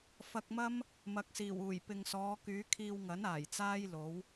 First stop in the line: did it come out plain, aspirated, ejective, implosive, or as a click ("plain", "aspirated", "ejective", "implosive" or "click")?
plain